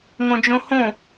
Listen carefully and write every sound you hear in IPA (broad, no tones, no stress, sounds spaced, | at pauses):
ŋ õ d͡ʒ õ h õ